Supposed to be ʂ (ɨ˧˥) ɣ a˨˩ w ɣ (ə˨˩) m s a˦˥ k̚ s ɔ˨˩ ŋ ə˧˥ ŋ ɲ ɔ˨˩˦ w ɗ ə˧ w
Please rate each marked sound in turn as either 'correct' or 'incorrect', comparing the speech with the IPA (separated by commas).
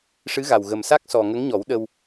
correct, correct